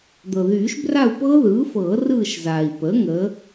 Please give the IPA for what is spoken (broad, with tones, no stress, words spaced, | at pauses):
d̪ɤ˩ðyː˨˩˦ʃbra˦˨u̯pɤː˦˥ ðɯː˩˥fɤː˨˩˦rɯː˦˨ʃzaː˩i̯ pə˩˥ ŋə˩˥